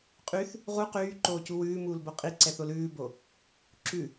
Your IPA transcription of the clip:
qʼ y θ | ʁ u q yː ǃ oː c u w ʉː m uː l b o qʼ i ǀ ɛ θ o l ʉː b o | ǁ ʉ

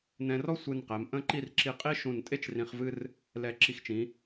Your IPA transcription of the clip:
n ɛ̃˧ r ɔ˥ sʷ ɨ˧˩ n q ɛ˩˧ m ʔ ə̃˥˧ ǃ i˥˧ r ǁ i˧ qʼ i˥ ʃ ũ˧˩ n tʼ e˥ t͡ʃ r ĩ˧ χ v ɨ˥ r | l ɛ˧˩ ǁ i˧˩ x t͡ʃ ĩ˩˧

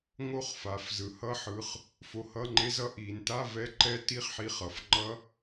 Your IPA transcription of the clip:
ŋ o˦˥ χ f a˩˧ f z ɯ˩˧ h ʌ˦˥ ħ ɯ˩˧˩ χ | f o˧ h ʌ˧˥˧ ŋ͡ǃ e˦˥ z ʌ˧˥˧ ʔ i˩˧ n t a˧˥˧ v ɛ˦˥ ǃ ɛ˦˥ t i˧˥˧ χ ħ i˧ χ ʌ˩˧ f ŋ͡ǃ ʌ˦˥

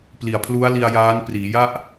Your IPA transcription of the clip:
p l i˨˩ a̯ pʰ l u˦˥ a̯ l i˧ a̯ j aː˦˥ n p r iː˩˦ j a˥˩ ʔ

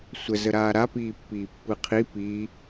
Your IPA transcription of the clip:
sʷ ə z ə ɾ aː ɾ a p iː pː iː pː ɯ qʰ i p i

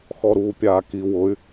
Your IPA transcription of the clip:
x ɔ ɾ uː pʲ aː k i w ʊ y̯

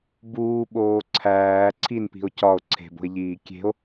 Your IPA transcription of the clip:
b uː ɓ oː ǀʰ æː ǀʰ i n p i̤ o̯ c ɒ o̯ ǀʰ e̤ b o̤ e̯ ʎ iː kʲ e̤ o̯

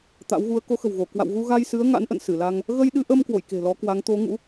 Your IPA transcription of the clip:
t̪ a̰˧˥ w ɣ u˨˦ ə̯ k o˨˦ x ə̤˨˩ w ɣ o˧˩ k w a̰˧˨ w ɣ u˧ ɣ a˧ j s ɨ˨˦ ə̯ ŋ a̰˧˥ n ʔ ə̰˧˨ n s ɨ˧˩ l a˧ ŋ | ɣ ə˧ j ɗ ɨ˧ ʔ ə˧ m k w o̰˧˨ j k e̤˨˩ l ɔ˨˦ k w a˨˦ ŋ t̪ o˨˦ ŋ ṵ˧˥

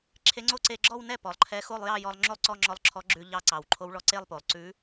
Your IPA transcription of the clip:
ǁʰ e˧˥ ŋ͡ǀ o˥˧ ǀ e˧ ɡ͡ǁ ɔ˥˧ w n ɛ˥˩ p ɔ˩ lˠ ǃʰ ɛ˧˥ x o˥˧ lˠ j ɑ˥˧ j ɔ˧ lˠ ŋ͡ǁ o˥˩ lˠ ǀ ɔ˥˧ ŋ͡ǁ ɔ˧˥ lˠ ǁʰ ɔ˧˥ ɡ͡ǁ ʉ˧ ʎ ɑ˧˥ ǀ ɑ˩ w ǃʰ o˧˥ w ɭ ɔ˧ ǀ e˥˧ lˠ p o˩ lˠ ǀ ʉ˧˥

